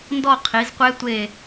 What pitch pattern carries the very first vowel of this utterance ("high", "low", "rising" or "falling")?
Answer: falling